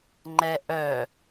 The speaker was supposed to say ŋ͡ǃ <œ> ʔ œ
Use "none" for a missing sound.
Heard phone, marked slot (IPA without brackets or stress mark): ɛ